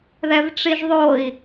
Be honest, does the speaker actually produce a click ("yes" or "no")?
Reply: no